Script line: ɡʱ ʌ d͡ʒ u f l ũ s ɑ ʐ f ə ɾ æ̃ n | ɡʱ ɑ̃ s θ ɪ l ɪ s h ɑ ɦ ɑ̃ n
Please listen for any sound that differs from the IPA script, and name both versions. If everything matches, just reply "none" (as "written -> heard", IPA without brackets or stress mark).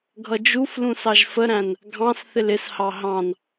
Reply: ʐ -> ʒ